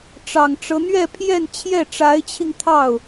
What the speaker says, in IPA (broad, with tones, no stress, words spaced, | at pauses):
ʈ͡ʂɑ˨˩ŋʈ͡ʂɤ˦ n̪ɥɛ˥˧pʰjɛ˥˧nt͡ɕʰjɛ˥˩ ʈ͡ʂa˧˥ɪ̯t͡ɕʰi˧ŋ t̪ʰɑ˥˩ʊ̯